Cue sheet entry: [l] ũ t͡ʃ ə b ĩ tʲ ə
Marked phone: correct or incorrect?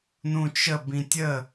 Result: incorrect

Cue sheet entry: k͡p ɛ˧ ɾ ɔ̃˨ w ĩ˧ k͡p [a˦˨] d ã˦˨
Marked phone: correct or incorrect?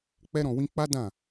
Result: incorrect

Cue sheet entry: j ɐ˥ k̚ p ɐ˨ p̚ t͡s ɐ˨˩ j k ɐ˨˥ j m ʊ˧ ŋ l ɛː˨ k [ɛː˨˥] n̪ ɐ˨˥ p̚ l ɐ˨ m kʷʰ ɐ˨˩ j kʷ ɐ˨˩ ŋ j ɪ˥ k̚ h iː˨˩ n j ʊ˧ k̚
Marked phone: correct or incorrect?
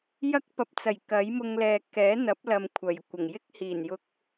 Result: correct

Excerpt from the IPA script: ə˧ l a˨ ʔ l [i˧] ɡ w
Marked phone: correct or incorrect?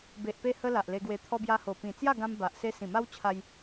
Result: incorrect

